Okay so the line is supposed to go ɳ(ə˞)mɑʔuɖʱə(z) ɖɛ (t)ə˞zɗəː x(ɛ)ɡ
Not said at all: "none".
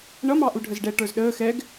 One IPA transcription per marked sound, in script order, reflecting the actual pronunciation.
ʌ, z, ʈ, ɛ

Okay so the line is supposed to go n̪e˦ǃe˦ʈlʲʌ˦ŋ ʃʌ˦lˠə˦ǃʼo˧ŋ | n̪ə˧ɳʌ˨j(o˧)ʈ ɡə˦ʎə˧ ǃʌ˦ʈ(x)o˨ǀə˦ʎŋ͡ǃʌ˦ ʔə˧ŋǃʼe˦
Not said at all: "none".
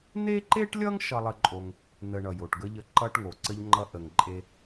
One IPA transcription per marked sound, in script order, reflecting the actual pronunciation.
o˨, ŋ

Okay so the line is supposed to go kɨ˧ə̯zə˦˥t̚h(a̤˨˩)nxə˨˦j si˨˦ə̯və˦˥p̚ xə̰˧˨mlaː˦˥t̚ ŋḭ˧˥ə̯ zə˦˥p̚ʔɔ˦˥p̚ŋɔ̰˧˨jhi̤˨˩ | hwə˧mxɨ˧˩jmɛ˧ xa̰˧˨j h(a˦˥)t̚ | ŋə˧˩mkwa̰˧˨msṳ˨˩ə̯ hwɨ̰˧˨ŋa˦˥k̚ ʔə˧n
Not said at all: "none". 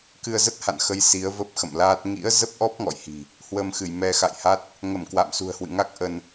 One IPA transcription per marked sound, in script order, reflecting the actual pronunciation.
a̰˧˨, a˦˥

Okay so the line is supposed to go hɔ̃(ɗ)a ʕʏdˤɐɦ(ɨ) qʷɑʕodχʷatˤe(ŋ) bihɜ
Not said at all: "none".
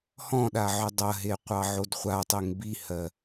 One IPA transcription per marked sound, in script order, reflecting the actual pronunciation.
ɗ, e, ŋ

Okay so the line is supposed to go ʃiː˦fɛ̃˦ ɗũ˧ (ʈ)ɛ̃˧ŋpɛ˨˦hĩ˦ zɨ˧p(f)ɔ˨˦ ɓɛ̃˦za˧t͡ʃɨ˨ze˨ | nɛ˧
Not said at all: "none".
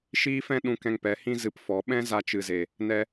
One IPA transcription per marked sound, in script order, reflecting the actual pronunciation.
k, f

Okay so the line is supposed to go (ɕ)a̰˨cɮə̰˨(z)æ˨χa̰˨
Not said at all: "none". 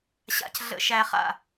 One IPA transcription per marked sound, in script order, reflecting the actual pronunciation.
ɕ, ʃ

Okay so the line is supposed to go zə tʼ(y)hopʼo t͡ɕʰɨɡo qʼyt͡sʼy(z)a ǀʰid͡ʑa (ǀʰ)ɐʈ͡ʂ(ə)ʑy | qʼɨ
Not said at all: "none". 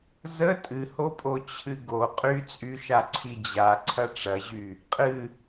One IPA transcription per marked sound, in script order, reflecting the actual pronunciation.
ɨ, ʃ, ǀʰ, ɐ

